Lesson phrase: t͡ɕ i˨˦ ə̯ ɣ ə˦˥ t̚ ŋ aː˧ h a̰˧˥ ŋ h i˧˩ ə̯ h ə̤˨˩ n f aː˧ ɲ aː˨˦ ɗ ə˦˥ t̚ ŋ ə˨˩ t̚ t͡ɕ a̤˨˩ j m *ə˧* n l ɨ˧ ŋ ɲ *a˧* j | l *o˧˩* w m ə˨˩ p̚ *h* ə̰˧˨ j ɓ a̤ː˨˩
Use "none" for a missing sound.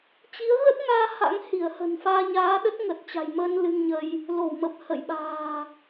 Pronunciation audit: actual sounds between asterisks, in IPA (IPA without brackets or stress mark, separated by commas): əː˧, ə˧, o˧˩, h